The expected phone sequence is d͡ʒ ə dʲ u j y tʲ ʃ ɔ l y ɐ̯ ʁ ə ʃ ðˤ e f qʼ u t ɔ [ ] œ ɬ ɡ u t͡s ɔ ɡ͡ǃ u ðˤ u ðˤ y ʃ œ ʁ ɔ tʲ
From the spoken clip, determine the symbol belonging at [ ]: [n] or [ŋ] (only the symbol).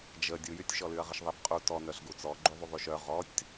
n